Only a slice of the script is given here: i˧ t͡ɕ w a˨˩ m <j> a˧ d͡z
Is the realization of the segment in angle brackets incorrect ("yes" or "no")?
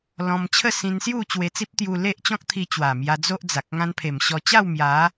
no